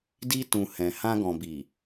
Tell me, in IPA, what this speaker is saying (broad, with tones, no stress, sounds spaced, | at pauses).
d i˧ t ũ˨ h ɛ̃˨ h ã˧ ɡ ɔ̃˨ b i˨